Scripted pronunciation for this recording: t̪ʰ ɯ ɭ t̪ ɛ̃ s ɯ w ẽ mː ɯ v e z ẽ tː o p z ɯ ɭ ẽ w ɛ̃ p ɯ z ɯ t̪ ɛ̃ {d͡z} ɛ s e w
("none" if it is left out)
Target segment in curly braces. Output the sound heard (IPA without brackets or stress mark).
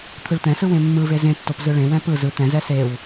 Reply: z